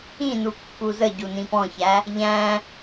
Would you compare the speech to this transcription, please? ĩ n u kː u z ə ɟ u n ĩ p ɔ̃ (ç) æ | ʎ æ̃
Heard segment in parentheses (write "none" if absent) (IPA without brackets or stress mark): ç